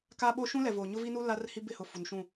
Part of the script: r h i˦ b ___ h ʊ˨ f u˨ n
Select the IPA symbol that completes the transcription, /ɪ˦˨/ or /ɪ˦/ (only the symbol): ɪ˦˨